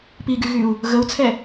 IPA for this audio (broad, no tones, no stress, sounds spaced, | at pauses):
p i ɡ y ɣ y u̯ | ɣ ə u̯ t͡sʰ ɛ